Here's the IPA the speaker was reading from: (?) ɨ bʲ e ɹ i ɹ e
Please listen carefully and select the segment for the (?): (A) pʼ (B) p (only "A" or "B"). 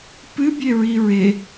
B